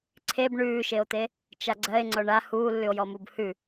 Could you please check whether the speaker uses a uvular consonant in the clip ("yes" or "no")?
no